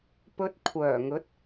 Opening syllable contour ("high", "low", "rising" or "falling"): low